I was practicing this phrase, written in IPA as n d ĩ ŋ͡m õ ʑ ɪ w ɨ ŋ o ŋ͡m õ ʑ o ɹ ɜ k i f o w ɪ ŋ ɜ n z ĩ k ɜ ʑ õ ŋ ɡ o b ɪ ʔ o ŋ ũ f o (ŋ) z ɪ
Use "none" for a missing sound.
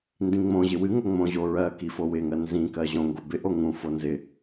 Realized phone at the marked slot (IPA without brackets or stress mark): n